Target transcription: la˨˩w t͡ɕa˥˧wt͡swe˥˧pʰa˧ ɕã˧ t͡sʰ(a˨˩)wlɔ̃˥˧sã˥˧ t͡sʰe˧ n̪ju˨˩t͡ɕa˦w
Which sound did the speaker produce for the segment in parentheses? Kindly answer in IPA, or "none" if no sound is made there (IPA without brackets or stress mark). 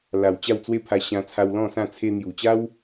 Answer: a˧